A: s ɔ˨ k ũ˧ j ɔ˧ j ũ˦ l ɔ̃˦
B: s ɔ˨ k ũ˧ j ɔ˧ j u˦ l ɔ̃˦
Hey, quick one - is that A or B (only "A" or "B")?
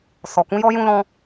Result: A